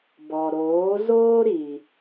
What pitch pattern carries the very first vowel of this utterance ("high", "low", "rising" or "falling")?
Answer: low